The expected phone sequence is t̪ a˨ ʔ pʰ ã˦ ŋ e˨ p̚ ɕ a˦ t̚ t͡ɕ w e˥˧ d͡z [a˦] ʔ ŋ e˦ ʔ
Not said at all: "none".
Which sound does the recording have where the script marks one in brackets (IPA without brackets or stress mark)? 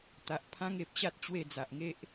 a˨